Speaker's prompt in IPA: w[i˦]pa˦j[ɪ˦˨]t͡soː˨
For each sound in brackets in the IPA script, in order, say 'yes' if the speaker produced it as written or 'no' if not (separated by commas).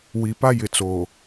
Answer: no, no